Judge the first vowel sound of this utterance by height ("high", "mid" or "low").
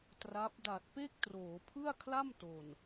low